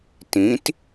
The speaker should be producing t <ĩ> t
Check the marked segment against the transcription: correct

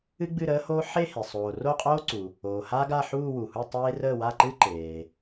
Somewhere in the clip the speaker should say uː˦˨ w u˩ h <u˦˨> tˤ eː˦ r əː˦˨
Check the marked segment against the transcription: correct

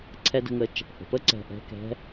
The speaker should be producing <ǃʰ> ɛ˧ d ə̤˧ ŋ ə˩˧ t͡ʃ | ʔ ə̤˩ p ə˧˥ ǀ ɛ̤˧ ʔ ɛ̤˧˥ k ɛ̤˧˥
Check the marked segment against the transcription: incorrect: ǀʰ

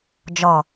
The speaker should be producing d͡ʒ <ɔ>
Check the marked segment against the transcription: correct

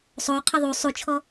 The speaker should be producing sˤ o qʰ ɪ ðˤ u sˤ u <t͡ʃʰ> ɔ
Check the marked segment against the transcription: correct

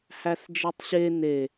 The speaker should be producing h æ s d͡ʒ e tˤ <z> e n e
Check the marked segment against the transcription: incorrect: ɕ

